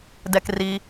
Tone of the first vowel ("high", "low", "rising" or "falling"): high